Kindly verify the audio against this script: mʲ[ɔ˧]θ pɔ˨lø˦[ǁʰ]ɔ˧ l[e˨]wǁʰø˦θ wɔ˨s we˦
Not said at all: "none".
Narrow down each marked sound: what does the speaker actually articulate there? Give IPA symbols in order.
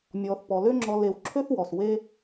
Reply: ɔ˧, ŋ͡ǁ, e˧

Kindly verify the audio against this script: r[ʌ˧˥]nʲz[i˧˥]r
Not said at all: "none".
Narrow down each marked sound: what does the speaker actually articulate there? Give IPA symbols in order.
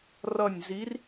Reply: ʌ˦˨, i˧˥

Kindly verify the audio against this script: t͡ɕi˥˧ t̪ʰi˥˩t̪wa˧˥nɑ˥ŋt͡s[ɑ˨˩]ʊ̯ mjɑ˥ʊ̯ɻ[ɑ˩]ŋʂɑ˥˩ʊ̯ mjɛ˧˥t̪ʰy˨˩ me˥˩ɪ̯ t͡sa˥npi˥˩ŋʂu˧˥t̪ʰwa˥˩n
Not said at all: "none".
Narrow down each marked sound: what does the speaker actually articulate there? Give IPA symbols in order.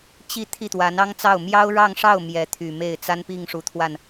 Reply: ɑ˥˩, ɑ˥˧

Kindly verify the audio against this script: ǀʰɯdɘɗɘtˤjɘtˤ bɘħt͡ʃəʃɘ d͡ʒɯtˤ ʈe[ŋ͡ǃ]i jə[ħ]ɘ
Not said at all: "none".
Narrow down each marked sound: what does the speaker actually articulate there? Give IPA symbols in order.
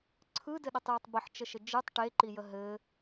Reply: ǃ, ɦ

